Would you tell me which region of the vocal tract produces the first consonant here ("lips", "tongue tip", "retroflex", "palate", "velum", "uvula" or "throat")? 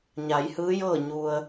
palate